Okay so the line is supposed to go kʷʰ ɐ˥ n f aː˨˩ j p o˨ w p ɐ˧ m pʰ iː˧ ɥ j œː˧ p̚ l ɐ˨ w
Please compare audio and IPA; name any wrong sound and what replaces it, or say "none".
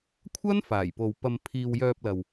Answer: ɥ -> w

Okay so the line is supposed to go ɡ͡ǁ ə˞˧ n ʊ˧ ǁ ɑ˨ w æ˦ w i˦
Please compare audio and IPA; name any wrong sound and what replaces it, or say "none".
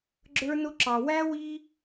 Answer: none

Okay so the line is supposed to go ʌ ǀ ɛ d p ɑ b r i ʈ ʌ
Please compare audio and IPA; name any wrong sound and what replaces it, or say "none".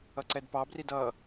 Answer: ʈ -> d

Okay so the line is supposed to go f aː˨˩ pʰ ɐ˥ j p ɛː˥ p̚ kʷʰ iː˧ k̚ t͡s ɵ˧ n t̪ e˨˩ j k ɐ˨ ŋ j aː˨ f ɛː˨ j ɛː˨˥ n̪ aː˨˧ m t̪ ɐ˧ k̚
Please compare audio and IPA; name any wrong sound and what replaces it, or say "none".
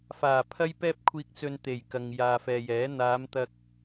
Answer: none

